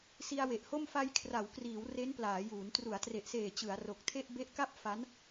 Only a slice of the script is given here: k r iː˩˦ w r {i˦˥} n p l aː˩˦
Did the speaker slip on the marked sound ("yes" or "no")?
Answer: yes